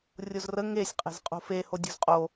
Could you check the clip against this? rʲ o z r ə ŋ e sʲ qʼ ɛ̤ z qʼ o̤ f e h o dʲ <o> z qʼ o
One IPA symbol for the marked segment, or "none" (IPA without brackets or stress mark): o̤